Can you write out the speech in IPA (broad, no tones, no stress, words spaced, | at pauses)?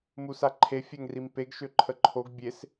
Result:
musaǃʰe fʲɛŋrimpeɡ ʃøǃʰəǃʰoɡ bʲes